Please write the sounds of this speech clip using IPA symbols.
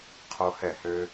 qʰo˦hɛ˦˨hø˦

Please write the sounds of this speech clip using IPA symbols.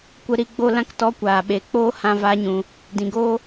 kʷə˧ɾi˧ɡ͡bo˦˨lã˦k tɔ˦kʷaː˨ɓe˨ k͡poː˦ hã˧va˨˦ɲũ˨ | dĩ˨ɡoː˦

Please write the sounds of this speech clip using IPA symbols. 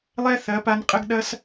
lˠɛ˦θɐ˨˦pa˧n qʼə˦ɡɗɐ˦s

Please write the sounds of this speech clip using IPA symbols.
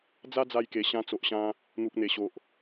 d͡za˦d͡za˧jke˨˩ ɕã˧t͡so˨ʔɕã˧ | n̪u˨k̚n̪e˨˩ɕo˨ʔ

